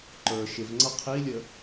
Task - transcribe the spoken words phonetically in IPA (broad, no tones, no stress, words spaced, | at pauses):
ǃə˞ ʃɪvŋ͡ǀʌ qʰilʲə